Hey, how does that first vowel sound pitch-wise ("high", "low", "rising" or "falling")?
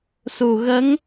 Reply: low